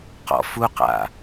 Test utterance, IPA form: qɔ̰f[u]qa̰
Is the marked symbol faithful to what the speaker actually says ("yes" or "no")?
yes